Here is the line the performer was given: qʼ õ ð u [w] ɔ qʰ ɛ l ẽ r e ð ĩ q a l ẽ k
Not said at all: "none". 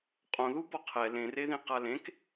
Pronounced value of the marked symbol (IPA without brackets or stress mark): b